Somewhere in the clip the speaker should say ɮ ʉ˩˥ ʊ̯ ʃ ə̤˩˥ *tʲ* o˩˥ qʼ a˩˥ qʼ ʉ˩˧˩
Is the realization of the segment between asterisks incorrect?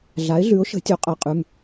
no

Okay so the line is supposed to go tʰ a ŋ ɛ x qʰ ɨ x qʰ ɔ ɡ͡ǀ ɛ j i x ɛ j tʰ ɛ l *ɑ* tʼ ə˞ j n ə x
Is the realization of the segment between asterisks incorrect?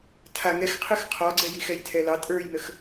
no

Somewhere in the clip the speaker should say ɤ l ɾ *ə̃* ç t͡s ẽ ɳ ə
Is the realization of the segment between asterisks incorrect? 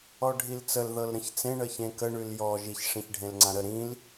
no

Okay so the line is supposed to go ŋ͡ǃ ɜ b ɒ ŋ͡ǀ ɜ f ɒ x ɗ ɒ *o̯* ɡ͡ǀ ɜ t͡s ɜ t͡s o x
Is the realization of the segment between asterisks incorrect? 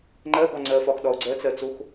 no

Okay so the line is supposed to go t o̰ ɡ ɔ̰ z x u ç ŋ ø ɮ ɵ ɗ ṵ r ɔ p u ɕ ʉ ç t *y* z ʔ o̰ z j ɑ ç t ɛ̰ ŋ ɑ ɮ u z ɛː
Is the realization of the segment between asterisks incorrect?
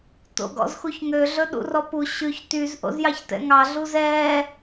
no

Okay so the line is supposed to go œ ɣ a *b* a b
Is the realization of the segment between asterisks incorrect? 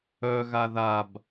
yes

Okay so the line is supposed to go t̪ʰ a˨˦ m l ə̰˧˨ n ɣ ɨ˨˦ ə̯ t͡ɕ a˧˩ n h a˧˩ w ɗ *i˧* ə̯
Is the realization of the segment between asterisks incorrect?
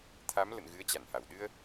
yes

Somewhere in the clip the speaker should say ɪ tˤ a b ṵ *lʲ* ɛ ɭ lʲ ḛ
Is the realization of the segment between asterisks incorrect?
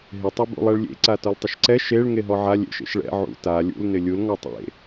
yes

